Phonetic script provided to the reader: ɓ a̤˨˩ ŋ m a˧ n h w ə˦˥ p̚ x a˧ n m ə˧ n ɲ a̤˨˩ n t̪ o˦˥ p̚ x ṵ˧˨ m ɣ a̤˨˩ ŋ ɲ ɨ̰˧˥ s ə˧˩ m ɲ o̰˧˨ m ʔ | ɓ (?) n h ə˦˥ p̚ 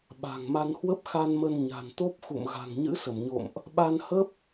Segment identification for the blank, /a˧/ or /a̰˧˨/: a˧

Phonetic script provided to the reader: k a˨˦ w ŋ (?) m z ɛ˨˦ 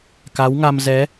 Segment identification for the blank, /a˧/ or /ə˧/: a˧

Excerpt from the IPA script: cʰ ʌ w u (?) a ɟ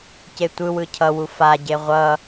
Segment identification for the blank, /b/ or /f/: f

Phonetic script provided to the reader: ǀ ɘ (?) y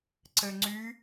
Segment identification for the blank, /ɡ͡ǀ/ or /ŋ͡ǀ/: ŋ͡ǀ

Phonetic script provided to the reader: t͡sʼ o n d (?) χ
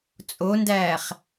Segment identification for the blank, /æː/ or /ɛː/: æː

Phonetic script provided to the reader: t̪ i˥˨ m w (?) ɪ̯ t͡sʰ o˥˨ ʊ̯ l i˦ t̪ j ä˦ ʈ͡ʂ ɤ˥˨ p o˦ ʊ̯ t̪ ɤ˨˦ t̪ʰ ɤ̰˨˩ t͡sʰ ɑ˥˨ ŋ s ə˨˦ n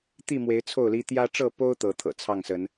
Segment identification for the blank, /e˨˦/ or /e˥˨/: e˨˦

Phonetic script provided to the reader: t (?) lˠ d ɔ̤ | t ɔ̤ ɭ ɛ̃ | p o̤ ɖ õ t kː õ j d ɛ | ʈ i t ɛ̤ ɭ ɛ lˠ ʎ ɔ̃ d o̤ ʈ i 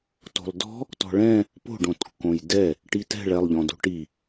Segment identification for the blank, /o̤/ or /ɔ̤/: o̤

